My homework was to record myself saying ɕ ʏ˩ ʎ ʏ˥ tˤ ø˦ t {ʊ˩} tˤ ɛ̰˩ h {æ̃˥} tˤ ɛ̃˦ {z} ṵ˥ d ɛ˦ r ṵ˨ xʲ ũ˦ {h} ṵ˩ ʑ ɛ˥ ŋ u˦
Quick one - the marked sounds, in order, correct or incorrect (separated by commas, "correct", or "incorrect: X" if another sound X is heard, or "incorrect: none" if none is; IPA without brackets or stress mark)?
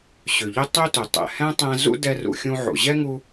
correct, incorrect: ɛ̃˥, correct, incorrect: ʕ